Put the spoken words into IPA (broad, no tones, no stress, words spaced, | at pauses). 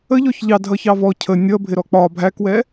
əʎɔç ʎɑdʱʌ çɑvɔ cʰə nʲʌ bʱɪɾɔk͡pɒ bʱækwɛ